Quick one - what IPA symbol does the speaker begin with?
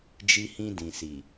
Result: d͡ʒ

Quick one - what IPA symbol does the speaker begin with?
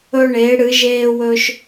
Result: ɵ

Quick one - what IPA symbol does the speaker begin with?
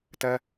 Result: t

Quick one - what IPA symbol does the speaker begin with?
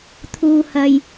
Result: t̪ʰ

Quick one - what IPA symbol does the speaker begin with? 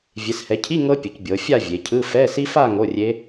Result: vʲ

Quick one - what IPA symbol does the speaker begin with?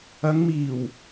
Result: ɐ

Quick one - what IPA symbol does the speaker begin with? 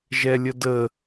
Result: ʒ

